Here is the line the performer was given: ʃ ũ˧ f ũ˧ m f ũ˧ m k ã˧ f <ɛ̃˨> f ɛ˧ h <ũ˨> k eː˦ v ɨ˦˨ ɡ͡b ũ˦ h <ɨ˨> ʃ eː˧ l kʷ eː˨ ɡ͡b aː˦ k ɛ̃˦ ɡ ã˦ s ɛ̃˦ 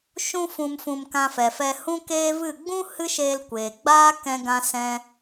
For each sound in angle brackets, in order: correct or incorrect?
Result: incorrect: ɛ˨, incorrect: ũ˦, incorrect: ɨ˦

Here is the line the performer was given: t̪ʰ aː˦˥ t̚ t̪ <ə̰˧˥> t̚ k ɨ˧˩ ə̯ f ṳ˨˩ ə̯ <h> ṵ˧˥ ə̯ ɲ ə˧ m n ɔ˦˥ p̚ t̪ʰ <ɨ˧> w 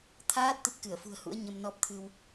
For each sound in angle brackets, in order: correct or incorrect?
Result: incorrect: ə˦˥, correct, correct

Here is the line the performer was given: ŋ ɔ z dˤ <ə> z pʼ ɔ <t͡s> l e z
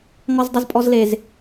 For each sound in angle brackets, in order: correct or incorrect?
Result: correct, incorrect: z

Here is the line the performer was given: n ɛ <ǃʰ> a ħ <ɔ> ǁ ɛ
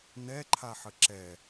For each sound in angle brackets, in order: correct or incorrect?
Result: correct, incorrect: ə

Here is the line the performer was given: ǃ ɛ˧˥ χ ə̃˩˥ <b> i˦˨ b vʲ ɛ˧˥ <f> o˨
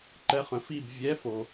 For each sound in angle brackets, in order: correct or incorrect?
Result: incorrect: f, correct

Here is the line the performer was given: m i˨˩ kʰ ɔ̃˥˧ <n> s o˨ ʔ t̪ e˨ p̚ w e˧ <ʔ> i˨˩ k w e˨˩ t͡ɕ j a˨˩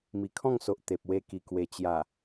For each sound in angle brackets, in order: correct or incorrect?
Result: incorrect: ŋ, incorrect: k

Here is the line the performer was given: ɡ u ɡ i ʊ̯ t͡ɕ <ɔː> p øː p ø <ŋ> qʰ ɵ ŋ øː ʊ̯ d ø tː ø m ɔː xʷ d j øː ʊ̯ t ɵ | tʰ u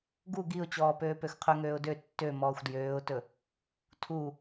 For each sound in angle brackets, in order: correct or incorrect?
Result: correct, incorrect: x

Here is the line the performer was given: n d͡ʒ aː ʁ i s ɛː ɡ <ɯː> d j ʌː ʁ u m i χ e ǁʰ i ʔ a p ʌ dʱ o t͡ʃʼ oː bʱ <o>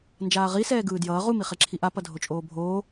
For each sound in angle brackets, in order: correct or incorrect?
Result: correct, incorrect: oː

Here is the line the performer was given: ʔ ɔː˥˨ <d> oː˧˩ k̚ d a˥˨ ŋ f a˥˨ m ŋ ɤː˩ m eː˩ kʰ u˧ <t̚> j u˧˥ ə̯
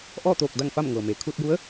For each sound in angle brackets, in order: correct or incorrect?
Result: incorrect: t̪, correct

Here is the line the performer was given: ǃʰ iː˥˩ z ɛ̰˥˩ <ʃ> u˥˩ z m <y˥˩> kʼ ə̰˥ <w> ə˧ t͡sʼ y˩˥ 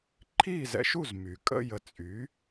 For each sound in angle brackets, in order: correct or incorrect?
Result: correct, incorrect: y˩, incorrect: j

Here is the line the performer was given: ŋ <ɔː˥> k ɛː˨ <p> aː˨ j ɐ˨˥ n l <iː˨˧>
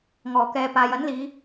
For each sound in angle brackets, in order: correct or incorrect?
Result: incorrect: ɔː˨˩, correct, correct

